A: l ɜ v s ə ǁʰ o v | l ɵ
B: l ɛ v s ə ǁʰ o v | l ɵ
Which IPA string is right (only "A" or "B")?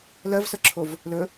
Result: A